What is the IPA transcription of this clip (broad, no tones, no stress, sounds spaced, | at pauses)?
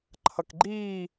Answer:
ǃʰ ʌ k ɡ͡ǃ iː